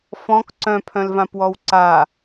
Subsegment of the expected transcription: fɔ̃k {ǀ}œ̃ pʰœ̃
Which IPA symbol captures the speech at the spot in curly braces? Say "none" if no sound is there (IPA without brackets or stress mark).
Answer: ǀ